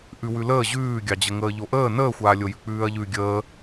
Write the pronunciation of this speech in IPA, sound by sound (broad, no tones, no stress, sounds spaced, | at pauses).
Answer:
ʔ ʉ w ʉ l əː ʑ ʉː ɡʲ ɑ d͡ʑ ə ŋ əː ʎ o ʔ əː n əː xʷ aː lʲ o j ʉ k͡p ʉː ɐ̯ ʎ ʉ ɡʲ əː